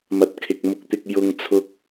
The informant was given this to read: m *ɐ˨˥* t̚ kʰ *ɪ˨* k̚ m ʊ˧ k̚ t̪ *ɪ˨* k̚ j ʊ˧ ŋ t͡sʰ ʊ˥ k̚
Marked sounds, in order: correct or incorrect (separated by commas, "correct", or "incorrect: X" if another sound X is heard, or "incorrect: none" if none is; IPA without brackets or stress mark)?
correct, correct, incorrect: ɪ˧